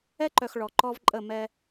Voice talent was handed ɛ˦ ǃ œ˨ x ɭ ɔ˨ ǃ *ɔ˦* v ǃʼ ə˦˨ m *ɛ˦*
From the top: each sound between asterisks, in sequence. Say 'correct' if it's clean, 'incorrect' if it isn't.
correct, correct

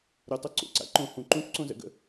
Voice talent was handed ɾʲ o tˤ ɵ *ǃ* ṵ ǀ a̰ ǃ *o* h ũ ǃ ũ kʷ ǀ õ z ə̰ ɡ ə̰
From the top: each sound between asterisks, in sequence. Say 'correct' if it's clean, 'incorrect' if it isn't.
incorrect: ǀ, incorrect: õ

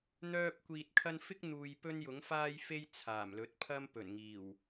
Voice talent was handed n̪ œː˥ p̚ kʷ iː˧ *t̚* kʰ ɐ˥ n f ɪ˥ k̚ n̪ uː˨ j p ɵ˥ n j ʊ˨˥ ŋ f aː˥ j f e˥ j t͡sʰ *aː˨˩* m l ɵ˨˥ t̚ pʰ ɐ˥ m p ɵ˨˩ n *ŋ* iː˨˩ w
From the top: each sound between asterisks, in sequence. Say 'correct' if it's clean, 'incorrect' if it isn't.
correct, correct, correct

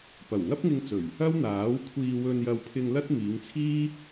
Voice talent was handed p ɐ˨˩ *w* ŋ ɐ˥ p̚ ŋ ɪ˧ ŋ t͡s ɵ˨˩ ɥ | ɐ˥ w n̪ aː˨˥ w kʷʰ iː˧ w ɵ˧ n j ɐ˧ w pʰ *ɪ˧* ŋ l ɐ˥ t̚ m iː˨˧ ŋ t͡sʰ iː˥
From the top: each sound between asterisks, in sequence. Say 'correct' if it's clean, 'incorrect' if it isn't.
correct, correct

